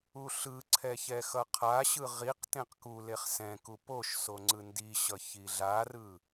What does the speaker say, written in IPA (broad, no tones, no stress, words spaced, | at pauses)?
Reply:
uɬɯǀʰɛ çɛxʌqʰaɕɯ ʁiq tẽqkuleχ sɛ̃kup oʃ soŋ͡ǀɯndiɕʌ çiɮarɯ